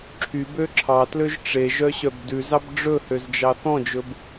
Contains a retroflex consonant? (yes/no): yes